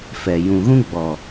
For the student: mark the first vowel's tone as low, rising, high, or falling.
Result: low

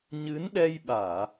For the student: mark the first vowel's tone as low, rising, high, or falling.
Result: rising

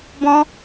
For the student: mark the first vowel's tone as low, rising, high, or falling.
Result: high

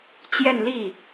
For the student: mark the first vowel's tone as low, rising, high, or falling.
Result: falling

